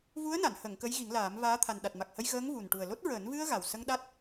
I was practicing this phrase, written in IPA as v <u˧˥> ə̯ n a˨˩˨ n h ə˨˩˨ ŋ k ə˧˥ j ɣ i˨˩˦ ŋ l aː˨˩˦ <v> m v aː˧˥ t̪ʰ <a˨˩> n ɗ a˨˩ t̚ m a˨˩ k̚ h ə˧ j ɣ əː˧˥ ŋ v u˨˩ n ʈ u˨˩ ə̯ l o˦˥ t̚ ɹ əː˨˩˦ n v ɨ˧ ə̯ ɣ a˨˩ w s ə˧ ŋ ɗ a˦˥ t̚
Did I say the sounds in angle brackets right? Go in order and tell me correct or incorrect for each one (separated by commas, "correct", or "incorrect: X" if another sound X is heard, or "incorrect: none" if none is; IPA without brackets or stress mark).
correct, incorrect: none, correct